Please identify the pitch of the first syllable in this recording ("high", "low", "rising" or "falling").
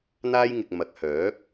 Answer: high